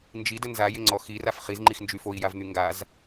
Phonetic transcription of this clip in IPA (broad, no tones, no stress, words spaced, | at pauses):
nd͡ʒidə nzajɪŋ͡ǀɔ xiraf χizŋ͡ǃixnd͡ʒy foi̯javn̪y ŋɡaz